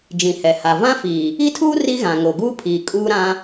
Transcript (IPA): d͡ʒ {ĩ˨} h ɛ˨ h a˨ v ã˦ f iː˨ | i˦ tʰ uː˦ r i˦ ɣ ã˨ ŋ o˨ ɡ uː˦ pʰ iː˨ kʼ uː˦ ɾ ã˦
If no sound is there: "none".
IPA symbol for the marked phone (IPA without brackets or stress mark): ĩ˨